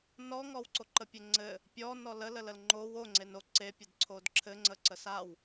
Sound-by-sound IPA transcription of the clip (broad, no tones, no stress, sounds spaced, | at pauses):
n ɔ ŋ ɔ w ǀ o ǃ ə pʲ ɘ ŋ͡ǀ ɘ | pʲ ɔ n ɔ l ə l ə l ə l ŋ͡ǃ o w o ŋ͡ǀ e n o ǀ e pʲ ɘ d ǀʰ o d ǁʰ ɘ ŋ͡ǀ ə ǀ ə s a w